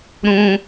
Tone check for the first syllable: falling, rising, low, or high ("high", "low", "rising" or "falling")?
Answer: high